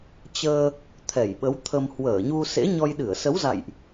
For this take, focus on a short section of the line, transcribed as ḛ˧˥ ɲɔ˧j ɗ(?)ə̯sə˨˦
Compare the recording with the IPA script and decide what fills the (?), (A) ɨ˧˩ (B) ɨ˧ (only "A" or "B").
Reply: A